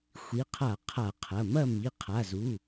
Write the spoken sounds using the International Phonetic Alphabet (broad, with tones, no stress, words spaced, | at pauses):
xʷi˩˧˩qʰa˧˩˧ qʰa˧˩˧qʰɐ˩˧˩mɐ˥˨ mi˩˧˩qʰa˩˧˩zu˩˧˩